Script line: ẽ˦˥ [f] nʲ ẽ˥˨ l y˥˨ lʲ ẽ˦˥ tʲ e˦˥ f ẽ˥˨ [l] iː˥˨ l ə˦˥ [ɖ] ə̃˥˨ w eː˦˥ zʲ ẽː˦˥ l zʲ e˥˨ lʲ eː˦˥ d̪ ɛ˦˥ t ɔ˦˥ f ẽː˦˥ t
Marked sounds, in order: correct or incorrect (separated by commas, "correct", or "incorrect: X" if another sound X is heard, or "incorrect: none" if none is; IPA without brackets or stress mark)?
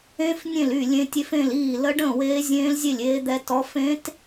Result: correct, correct, correct